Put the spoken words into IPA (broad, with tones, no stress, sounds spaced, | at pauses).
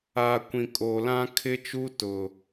a˨ kʷ ĩ˨ kʼ oː˨ l ã˦ kʰ ɪ˦ t͡ʃ u˦ t ʊ˨